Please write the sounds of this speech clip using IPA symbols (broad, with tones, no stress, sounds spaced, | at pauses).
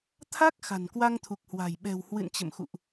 t̪ʰ a˦˥ k̚ x a̤˨˩ n k w a˧ ŋ t̪ʰ u˨˩ k̚ h w a̤˨˩ j ɓ ɛ̤˨˩ w h w ɨ̰˧˨ n t͡ɕ ə̰˧˨ m x ṵ˧˨ ʔ